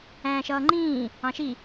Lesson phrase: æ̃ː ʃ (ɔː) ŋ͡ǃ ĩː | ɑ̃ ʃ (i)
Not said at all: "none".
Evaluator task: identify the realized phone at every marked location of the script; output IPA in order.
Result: ʌː, i

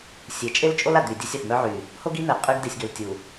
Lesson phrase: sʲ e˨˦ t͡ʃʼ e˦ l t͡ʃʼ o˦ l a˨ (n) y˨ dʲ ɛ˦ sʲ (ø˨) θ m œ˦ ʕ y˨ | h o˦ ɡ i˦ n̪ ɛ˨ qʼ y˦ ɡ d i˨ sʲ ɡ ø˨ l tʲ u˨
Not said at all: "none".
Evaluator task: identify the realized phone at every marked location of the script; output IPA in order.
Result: d̪, œ˨

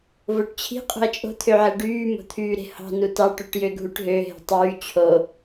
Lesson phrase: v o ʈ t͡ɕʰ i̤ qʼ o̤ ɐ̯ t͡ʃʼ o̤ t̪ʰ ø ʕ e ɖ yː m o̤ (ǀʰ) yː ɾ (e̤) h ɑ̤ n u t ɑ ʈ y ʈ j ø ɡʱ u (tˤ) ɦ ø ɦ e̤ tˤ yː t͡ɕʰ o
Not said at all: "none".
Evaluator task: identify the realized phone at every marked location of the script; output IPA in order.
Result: t̪ʰ, e̤, ʈ

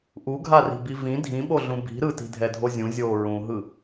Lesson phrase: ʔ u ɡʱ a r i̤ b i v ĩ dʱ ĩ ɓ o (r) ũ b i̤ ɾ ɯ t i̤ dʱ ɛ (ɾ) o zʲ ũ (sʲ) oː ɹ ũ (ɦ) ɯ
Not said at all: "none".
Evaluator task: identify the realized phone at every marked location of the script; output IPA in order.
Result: ɮ, dʱ, zʲ, ɦ

